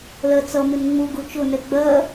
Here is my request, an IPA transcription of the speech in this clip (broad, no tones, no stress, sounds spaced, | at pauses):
l ɜ t͡s ʌ m ɪ n ŋ͡m u ɡ u t͡ʃ ʊ n ɛ ɡ͡b ɜ